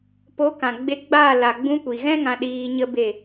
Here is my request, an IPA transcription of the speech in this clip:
p o˨˦ k ã˨ ɡ͡b e˧ ɡ͡b a˦˨ l a˨ ɡ͡b ũ˧ kʷ iː˨ ɣ ɛ̃˦ ŋ ã˧ ɗ iː˧ ɲ ə˦ b e˦˨

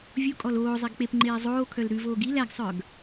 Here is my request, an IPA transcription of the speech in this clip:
vʲ u kʼ ɔ l oː zˤ e ɡ k͡p e p ŋ͡ǃ eː zˤ oː kʰ œ l ɾ ʉ v oː ɡ i l æ ɡ sˤ œ ɡ

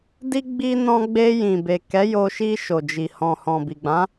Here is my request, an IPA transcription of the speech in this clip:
d i˧ ɡ͡b i˧ n ɔ̃˧ ɡ͡b e˧ j ĩ˨ b e˨ k ɛ˨˦ j o˧ ʃ i˧ ʃ o˨ d͡ʒ i˨ h ɔ̃˨ h ɔ̃˨ b i˨ ɡ͡b ã˨˦

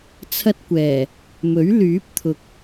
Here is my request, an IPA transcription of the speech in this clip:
t͡sʰ ɐ˥ t̚ kʷ ɛː˨˩ | m ɵ˨˥ ɥ l yː˨˥ p̚ t̪ʰ ʊ˨ k̚

